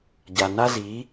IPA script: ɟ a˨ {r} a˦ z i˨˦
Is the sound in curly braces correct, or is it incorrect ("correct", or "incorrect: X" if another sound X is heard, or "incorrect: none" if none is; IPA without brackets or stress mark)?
incorrect: n